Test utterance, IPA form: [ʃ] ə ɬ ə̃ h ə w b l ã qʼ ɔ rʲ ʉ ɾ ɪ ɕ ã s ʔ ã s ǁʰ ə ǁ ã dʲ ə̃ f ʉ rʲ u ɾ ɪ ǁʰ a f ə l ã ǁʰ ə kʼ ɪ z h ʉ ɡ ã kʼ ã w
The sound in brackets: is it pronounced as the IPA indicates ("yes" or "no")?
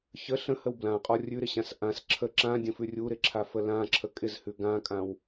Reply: no